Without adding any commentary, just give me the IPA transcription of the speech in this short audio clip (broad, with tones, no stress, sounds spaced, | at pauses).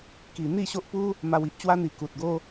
k i˨˩ n̪ i˥˧ ɕ o˦ ʔ p u˦ | m a˧ w i˦ ʔ t͡ɕ w a˦ n̪ i˨˩ k u˨ t̚ ɡ o˦